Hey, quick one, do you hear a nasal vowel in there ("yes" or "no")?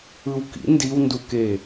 no